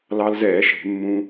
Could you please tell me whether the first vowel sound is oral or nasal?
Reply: oral